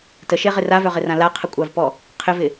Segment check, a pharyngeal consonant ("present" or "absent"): absent